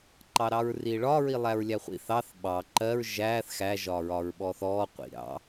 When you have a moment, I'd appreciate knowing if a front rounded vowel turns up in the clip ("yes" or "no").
no